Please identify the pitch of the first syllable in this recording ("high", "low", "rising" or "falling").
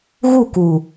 falling